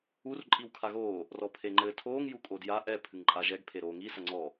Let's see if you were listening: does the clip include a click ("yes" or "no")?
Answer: yes